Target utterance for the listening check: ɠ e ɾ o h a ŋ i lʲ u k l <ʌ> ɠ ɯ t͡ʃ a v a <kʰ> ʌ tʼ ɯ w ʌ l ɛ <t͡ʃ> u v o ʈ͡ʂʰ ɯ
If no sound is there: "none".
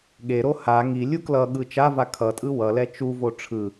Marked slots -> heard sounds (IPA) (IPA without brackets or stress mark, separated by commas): ʌ, kʰ, t͡ʃ